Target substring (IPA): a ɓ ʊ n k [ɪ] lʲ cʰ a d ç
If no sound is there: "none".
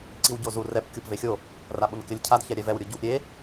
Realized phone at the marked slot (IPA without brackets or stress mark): ɪ